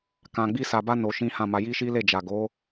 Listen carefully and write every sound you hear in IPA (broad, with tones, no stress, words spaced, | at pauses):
kã˧ɡ͡bi˦sa˧ba˦ no˧ ʃĩ˦ hã˦˨ma˧ ji˦ʃi˦ le˦˨d͡ʒa˨ɡo˨˦